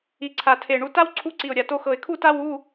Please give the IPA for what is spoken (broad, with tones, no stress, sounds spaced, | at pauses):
i˨˩ ǀʰ a˨˩ tʰ e˨˩ ɳ u˧ t a˥ w ǀʰ u˧˥˧ ǀ i˨˩ ʊ̯ ɾʲ a˨˩ t o˧ x ɤ˨˩ ɪ̯ kʰ u˥˧ t a˥ w u˧˥˧